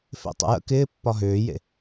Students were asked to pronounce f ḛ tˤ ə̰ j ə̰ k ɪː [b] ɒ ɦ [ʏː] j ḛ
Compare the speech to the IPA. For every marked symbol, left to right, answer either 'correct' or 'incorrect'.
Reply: incorrect: pː, correct

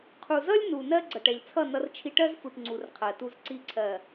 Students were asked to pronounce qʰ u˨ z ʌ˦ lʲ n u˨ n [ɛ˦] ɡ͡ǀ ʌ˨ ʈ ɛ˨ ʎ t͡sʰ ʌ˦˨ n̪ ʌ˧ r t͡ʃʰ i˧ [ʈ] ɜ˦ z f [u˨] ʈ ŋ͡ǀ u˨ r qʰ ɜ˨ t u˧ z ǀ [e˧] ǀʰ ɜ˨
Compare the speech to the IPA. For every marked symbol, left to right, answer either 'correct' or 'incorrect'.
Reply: incorrect: ɜ˦, correct, correct, incorrect: i˧

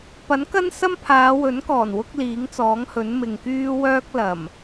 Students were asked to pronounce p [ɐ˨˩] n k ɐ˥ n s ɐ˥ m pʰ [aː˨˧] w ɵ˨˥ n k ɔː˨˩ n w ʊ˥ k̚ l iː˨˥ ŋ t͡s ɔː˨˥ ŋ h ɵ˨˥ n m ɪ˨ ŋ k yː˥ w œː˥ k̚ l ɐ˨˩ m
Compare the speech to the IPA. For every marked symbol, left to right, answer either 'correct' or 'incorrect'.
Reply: incorrect: ɐ˨˥, correct

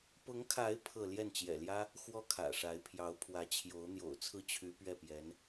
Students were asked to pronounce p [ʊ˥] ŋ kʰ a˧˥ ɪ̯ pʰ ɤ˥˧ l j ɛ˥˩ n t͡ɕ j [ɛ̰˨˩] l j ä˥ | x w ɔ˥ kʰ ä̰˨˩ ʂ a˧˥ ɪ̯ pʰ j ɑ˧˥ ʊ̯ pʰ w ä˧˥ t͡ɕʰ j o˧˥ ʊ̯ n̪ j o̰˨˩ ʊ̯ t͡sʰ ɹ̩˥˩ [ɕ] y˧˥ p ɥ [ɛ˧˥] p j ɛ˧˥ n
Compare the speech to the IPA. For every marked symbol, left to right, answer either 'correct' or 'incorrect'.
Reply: incorrect: ʊ˧˥, correct, incorrect: t͡ɕʰ, incorrect: ɛ˥˩

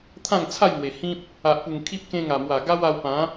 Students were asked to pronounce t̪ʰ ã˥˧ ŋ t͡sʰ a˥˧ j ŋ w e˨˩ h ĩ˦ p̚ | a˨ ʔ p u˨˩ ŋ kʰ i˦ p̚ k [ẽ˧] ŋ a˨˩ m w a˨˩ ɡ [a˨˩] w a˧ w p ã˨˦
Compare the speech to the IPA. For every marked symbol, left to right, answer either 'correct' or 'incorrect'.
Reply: correct, incorrect: a˦

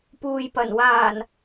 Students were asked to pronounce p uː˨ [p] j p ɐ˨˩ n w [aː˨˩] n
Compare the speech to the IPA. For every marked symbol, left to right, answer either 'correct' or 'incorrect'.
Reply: incorrect: none, correct

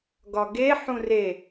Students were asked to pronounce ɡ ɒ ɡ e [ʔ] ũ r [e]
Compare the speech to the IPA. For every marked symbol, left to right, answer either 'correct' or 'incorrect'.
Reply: incorrect: ħ, correct

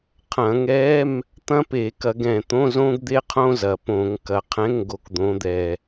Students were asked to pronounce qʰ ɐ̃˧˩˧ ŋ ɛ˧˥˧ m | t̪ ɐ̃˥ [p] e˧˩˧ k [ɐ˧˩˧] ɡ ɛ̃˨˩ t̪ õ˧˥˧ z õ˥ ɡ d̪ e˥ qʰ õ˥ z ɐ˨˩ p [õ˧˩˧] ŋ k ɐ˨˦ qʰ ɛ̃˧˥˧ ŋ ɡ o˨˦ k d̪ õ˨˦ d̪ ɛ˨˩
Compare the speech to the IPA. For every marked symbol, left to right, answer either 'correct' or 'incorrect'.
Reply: correct, correct, correct

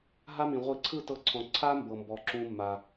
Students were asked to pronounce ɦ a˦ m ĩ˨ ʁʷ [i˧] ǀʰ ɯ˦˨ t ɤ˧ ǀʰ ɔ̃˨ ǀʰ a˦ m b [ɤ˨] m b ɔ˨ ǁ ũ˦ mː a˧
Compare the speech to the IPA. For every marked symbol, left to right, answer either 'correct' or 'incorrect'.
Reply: correct, correct

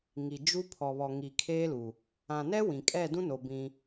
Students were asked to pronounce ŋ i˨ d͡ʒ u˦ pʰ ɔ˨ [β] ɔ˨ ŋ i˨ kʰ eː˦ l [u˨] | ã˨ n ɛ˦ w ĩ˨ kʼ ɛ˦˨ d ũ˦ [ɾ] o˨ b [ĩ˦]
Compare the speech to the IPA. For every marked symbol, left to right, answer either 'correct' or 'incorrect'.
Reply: correct, correct, incorrect: n, correct

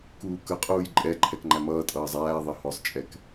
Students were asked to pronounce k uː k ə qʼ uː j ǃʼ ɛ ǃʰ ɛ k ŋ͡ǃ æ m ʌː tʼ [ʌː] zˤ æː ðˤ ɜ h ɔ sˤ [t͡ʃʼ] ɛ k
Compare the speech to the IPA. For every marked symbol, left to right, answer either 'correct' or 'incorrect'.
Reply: correct, correct

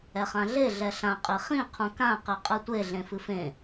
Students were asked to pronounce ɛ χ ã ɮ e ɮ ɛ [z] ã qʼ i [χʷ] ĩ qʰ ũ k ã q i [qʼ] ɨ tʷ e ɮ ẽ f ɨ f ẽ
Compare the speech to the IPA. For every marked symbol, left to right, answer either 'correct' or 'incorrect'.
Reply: incorrect: ɬ, incorrect: χ, correct

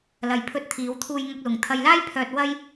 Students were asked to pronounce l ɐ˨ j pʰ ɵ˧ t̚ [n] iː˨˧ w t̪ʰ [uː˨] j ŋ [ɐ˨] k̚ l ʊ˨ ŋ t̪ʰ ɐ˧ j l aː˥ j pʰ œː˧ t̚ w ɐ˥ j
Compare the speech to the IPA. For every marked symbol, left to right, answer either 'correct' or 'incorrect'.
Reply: incorrect: t̪ʰ, incorrect: uː˧, incorrect: ɐ˧

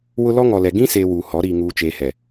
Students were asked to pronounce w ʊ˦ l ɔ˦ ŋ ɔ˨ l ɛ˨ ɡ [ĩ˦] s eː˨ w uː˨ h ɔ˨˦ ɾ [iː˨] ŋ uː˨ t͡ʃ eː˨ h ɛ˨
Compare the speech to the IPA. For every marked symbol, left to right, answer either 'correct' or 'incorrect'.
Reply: correct, correct

